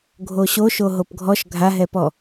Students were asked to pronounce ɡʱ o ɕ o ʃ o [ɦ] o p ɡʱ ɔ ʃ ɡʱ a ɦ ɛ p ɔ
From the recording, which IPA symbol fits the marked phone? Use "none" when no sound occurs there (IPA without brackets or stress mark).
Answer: ɦ